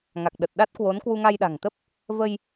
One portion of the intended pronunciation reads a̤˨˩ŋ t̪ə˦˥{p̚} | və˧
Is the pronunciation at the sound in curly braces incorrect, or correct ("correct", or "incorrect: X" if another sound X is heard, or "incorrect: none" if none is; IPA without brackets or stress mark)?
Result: correct